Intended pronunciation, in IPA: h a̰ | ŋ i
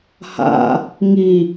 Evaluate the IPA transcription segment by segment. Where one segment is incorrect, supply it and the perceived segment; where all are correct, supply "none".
none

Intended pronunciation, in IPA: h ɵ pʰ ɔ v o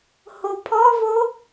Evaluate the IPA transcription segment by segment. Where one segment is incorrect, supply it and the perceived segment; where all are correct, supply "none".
ɵ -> o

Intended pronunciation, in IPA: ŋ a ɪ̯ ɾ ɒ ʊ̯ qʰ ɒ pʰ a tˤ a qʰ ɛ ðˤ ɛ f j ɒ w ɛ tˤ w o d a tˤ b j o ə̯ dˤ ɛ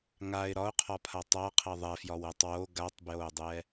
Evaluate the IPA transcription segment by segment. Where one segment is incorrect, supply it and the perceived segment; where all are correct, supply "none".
d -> ɡ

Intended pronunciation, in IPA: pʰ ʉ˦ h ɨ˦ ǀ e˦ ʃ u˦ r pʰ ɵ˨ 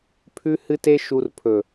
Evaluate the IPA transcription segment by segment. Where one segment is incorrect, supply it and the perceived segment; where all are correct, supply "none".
ǀ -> t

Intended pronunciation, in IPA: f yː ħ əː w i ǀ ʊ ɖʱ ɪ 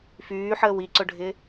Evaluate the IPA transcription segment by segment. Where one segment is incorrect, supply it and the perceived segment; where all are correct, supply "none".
none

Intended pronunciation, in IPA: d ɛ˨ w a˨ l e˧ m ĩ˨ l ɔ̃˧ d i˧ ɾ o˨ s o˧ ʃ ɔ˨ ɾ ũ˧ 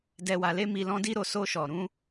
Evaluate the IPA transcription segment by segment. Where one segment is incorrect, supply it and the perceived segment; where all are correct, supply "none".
ĩ˨ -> i˨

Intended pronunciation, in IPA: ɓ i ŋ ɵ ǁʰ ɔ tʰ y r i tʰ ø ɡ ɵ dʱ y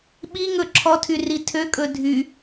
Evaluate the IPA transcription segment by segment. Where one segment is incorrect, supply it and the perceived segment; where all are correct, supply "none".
ɡ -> kʼ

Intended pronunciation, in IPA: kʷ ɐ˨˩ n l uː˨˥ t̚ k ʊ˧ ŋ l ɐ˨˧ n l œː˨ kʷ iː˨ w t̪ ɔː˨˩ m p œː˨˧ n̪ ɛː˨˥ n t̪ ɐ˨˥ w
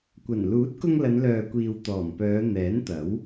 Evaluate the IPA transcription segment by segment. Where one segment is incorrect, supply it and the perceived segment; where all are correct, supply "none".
none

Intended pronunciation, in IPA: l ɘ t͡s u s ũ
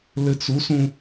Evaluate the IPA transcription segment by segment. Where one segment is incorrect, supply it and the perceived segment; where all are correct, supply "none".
none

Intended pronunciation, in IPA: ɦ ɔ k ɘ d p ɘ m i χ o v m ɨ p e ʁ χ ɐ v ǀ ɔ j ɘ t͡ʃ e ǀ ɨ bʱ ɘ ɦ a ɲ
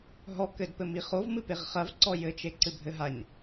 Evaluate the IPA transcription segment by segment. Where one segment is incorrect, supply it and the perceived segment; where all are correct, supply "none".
none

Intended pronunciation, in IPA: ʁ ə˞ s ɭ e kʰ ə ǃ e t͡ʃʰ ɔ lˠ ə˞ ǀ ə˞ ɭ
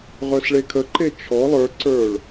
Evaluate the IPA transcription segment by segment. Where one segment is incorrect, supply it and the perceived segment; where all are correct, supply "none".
none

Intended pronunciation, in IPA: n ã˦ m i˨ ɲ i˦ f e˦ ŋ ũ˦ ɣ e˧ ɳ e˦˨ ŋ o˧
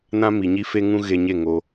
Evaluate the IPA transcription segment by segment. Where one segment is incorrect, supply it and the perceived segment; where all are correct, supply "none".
ɳ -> ɲ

